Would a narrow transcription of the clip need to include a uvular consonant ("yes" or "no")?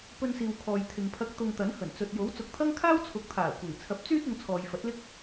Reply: no